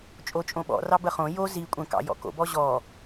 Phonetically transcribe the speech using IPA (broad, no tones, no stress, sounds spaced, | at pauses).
t͡ʃʼ o t͡ʃʼ õ ɓ ɔ̰ r ɑ b ə χ õ j o z i kʷʼ ə̃ k ɑ̰ j ɔ̰ k o̰ b ɔ ʑ ɔ